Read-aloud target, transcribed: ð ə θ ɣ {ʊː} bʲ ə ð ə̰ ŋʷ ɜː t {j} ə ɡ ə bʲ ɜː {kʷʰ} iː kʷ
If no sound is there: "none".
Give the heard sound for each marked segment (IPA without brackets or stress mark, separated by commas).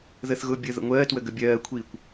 ʊː, w, kʷʰ